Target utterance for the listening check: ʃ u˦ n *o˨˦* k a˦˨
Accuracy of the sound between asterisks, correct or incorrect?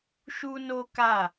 incorrect